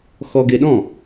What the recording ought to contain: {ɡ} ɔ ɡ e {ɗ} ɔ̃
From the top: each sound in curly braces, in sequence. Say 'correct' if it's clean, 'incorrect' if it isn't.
incorrect, correct

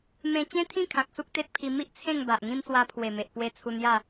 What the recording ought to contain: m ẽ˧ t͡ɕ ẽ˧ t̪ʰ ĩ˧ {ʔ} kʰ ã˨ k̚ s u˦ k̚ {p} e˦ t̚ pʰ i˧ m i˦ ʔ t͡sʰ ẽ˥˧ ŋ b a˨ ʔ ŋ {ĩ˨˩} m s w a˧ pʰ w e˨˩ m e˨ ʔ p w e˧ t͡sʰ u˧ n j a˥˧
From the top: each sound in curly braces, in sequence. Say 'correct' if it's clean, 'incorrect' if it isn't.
incorrect, incorrect, incorrect

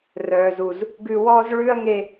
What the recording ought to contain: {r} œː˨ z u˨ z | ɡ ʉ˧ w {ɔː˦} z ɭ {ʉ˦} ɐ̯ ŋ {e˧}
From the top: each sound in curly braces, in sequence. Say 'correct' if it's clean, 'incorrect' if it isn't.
correct, correct, correct, correct

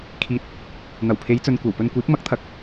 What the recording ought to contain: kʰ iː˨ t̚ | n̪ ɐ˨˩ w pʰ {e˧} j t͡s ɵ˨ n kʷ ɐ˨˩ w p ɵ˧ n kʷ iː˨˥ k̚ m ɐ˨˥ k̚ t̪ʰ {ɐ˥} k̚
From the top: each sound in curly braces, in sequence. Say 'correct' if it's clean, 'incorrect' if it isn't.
incorrect, incorrect

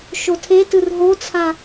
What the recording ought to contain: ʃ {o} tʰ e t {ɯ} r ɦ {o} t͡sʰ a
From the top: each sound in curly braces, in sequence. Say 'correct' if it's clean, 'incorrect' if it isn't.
correct, correct, correct

